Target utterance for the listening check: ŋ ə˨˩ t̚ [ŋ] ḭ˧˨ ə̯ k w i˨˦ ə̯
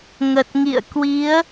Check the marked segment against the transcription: correct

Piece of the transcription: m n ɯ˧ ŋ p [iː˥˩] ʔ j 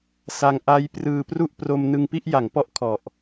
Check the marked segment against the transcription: incorrect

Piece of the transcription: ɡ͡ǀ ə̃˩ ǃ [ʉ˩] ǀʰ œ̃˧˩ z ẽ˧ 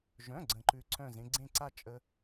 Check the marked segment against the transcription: correct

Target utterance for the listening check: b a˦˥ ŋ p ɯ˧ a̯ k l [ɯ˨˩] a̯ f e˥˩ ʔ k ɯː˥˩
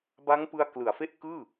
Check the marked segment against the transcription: correct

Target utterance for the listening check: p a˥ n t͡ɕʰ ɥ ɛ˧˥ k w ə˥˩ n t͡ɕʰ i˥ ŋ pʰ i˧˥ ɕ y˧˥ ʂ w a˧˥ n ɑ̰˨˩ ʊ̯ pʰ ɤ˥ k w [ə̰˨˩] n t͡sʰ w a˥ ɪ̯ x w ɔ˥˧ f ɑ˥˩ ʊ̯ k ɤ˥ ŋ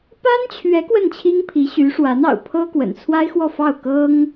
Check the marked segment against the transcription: correct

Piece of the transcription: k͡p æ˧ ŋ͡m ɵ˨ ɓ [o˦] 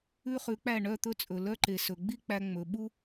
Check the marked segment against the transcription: incorrect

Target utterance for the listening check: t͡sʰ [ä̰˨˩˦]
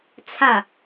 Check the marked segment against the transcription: incorrect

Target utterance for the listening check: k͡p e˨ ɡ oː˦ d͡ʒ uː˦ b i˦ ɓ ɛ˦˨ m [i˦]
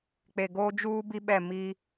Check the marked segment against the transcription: correct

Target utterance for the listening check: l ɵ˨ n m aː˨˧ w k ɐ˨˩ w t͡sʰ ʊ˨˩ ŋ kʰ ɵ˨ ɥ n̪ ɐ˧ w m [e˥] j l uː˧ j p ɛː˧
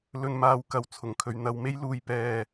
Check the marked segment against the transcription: correct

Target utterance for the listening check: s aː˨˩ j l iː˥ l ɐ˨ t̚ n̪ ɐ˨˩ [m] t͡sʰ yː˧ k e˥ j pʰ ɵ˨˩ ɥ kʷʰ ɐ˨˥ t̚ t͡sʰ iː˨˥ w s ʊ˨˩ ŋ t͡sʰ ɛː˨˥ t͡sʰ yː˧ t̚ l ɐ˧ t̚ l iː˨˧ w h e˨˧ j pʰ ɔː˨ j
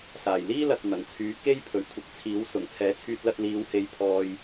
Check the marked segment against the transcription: incorrect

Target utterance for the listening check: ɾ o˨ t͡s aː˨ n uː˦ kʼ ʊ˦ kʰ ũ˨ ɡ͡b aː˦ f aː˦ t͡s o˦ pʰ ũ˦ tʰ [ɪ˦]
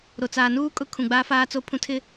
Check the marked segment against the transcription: correct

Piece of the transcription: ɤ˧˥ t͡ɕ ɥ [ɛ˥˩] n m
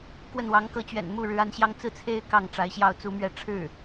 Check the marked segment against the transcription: incorrect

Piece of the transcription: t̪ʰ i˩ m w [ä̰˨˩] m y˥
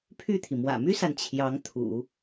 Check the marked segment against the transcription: correct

